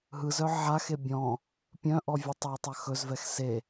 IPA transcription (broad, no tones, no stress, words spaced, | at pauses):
ɦɯzœ ʕaxe bʲɔ̃ | pʲœ̃ʔɔ vʲɵtˤɵy̯tˤœ xɵzvɛx se